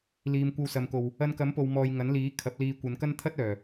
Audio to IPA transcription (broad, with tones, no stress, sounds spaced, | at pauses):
l iː˨ m kʷ ɐ˧ w s ɐ˨ m k o˨ w | ɐ˧ n k ɐ˨˥ m p o˨ w m ɔː˨ j ŋ ɐ˨˥ n l iː˨˥ kʰ ɐ˨˥ p̚ l iː˧ kʷ ɐ˨˧ n k ɐ˥ n t̪ʰ ɐ˥ t̚ œː˨˩